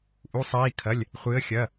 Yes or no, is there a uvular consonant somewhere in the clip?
yes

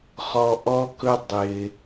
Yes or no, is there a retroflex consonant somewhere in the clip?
no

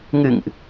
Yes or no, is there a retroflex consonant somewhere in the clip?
no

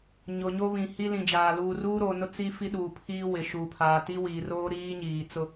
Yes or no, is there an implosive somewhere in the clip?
yes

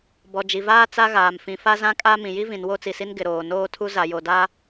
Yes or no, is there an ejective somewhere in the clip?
yes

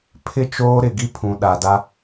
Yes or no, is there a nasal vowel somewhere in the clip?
yes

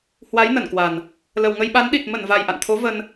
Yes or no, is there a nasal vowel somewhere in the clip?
no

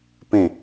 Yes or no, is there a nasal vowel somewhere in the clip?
yes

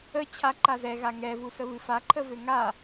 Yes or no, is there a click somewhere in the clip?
yes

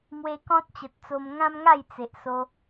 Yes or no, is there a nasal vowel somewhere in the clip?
yes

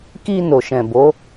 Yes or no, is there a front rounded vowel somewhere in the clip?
no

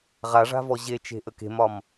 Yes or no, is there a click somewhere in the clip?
no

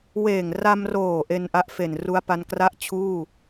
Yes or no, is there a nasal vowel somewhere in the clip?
no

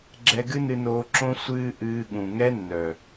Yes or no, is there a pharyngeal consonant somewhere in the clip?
no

